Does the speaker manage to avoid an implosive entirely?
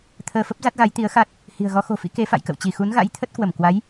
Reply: yes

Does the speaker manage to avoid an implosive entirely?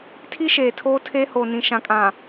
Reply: yes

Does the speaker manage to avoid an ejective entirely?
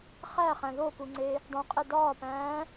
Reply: no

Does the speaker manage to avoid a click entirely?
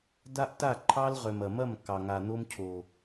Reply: no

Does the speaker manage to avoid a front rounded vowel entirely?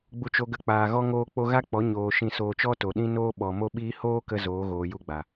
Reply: yes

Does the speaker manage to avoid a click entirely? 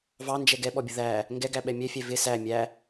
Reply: yes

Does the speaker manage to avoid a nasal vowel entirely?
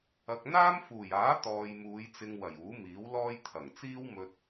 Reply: yes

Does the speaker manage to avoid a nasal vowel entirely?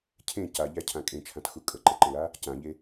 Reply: no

